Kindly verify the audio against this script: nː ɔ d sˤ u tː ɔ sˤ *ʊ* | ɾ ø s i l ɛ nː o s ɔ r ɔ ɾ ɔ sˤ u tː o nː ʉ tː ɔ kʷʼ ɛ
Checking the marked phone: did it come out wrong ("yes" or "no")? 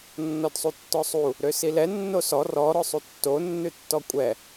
yes